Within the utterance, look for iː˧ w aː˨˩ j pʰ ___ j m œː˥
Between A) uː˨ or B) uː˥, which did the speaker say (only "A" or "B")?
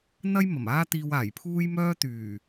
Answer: B